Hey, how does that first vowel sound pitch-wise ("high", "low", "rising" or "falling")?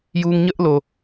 high